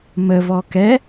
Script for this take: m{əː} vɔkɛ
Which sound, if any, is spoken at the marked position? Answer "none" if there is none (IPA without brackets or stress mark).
ə